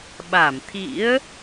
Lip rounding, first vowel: unrounded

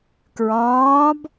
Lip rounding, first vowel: rounded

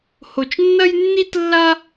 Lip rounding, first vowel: rounded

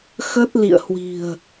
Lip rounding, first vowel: unrounded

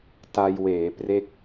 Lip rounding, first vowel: unrounded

